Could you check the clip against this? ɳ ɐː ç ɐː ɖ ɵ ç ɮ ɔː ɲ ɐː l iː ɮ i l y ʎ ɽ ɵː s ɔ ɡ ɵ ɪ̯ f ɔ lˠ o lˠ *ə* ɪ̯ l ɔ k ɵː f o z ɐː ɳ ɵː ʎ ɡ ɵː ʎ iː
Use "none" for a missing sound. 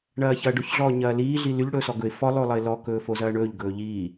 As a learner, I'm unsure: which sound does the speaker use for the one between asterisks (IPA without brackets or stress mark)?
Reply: ə